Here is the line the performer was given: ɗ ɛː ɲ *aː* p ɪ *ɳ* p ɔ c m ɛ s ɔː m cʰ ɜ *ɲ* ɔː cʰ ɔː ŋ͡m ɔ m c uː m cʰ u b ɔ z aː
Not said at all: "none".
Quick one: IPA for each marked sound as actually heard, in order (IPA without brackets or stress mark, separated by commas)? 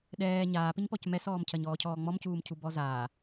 aː, ɲ, ɲ